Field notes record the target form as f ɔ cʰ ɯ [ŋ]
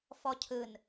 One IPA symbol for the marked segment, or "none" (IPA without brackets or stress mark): n